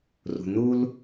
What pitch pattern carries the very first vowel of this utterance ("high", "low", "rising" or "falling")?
low